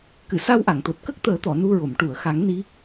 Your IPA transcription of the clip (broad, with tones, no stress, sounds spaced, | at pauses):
k ɨ˨˩˨ s a˧ w ʔ a˨˩˨ ŋ t̪ o˨˩ t̚ k ə˦˥ k̚ t̪ əː˨˩˦ t̪ ɔ˨˩˨ n u˧ ɹ o˨˩˨ m ʈ u˨˩˨ ə̯ x a˨˩˦ ŋ n i˧˥